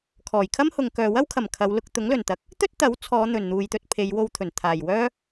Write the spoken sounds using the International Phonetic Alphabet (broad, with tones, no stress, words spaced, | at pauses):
kʰɔː˨˩jkʰɐ˥m hʊ˨ŋkœː˨ wɐ˥wkʰɐ˨˩m kʰɐ˨˧w lʊ˧k̚t̪ʊ˨˥ŋlɵ˨˩nt̪ɐ˨˥k̚ | t̪ɵ˥t̚ t̪ɐ˨˥wt͡sʰɔː˨˧ n̪ɵ˨˩n n̪uː˨jt̪ɵ˧t̚pʰe˨˧jwo˧w t̪ʰɵ˨˩nt̪ʰaː˨˩jwœː˥